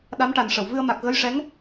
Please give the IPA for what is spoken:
ɗa˧˥mʈa˨˩n ʂə˨˩˨w vɨ˧ə̯ma˨˩k̚ ɣə˧˥jʂɛ˧˥ŋ

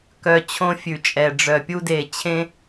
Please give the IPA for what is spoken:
kœ˨ t͡ɕʰõ˧fʲʉ˨t͡ʃʼɛ˨ ɖ͡ʐœ˨pʲu˧de˨t͡ɕʰẽ˧

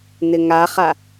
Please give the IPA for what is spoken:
n̪ɪŋaχa

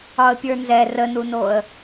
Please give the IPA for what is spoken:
ɒə̯pʲə˞nzɛ rənunoə̯

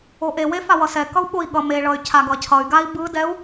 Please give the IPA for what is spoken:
oʔewe fawʌsɛkʌu̯ ɓoi̯ɠʌmeɭʌy̯ cʰaɡʌcʰʌy̯ɡai̯ bɯdɛu̯

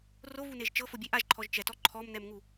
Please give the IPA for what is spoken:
rovuneʒ t͡ʃɤfobʲe ʔaʒǃʰɔʒ t͡ʃɛtɔ ǃʰɔmnɛmŋu

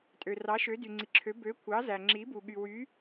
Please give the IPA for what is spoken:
tʼø˩rɑ˩˥ʃø˩˥ dy˩ŋ͡ǀi˩ǁʰø˩˥ bø˩˥ kʷʰɑ˩˥ zæ˩ŋ͡ǁi˩˥bu˩ ɠy˩wy˩˥

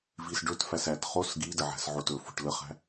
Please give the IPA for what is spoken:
visɖɵtfæs æt χos ɡidə ʕæ̤sʕotɵfo̤ʈ ləχæ̤

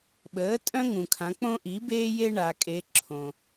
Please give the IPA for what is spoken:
ɓəː˩˥tʼœ̃˦ŋũ˩kʰã˩˧ k͡põ˦ʔi˩˥beː˦je˦ ɳa˩kʼe˩˧ ǁʰõ˩

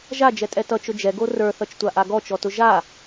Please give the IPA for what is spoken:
ʒad͡ʒɛtʼɛ tʌt͡ʃʊ d͡ʒɛɡo rə˞θʌt͡ʃtʷaʔa ɡɔt͡ʃɔtʊ ʒa

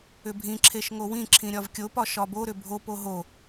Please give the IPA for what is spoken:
ʏbʱĩǁʰeʃ ŋowĩǁʰĩ ɾʲɒvkʲopɒ ʃɒboɾʏ bʱopo ɦo

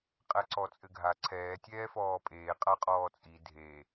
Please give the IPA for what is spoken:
qʼɛǀɔt͡sʼɘɡʱa ǀʰɛː tʲɛːfɔːpʼeː qʼaqʼɔːt͡sʼi dʱe

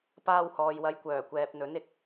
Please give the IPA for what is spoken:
paː˧whɔː˨jwɐ˨˧j kʷœː˨˩ kʷɛː˨p̚n̪ɵ˨˥n ɪ˧k̚

